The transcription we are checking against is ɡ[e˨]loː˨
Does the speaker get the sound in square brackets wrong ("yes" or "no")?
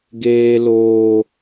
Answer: yes